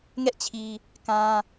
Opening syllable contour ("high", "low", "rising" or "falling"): high